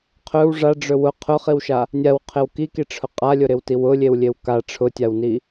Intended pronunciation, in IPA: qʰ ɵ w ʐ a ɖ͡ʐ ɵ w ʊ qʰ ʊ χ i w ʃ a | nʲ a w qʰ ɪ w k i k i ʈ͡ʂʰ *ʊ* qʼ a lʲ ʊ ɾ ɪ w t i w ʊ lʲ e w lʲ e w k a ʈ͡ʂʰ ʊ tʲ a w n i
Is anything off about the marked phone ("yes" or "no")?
no